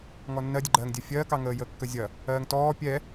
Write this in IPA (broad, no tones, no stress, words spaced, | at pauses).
ŋɔnːɜdʲəɡ͡ǃɜːŋ dʲɜfʲɜːkɑ ŋəːjəːkːəzʲɐ | ɜːŋtɔː pʲɛ